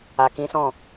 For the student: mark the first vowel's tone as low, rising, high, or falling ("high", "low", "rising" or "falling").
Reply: low